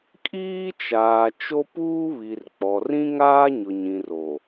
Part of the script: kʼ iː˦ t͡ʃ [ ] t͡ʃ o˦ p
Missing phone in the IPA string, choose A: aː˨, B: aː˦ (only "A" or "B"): A